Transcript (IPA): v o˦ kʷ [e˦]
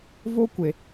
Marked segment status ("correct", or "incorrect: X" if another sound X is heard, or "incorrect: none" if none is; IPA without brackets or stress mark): incorrect: e˨